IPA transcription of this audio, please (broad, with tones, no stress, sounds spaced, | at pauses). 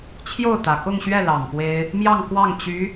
t͡ɕʰ j o˥˩ ʊ̯ t̪ ä˨˩ k ʊ˥˧ ŋ ɕ ɥ ɛ˥˩ l ɑ˨˩ ŋ p w e˥ ɪ̯ | m j ɑ˥˧ ŋ k w ɑ˥˩ ŋ t͡ɕ y˧˥